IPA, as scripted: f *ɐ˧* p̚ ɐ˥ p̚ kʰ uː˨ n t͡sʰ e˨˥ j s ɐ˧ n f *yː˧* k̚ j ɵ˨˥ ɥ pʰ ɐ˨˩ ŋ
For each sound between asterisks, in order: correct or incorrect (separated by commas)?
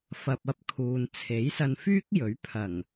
correct, incorrect